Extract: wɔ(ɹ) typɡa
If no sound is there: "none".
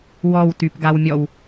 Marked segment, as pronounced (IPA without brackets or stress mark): w